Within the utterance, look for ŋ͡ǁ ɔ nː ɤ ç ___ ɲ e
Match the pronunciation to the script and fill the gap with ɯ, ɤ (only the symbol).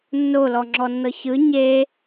ɯ